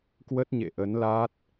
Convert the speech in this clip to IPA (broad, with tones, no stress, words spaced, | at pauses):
kwə˦˥t̚ɲḛ˧˨ʔə˨˦nlaː˦˥t̚